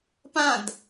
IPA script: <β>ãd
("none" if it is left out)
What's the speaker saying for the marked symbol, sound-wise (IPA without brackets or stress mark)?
p